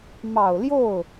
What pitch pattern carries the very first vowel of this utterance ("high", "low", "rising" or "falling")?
low